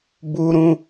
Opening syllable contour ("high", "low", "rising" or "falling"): high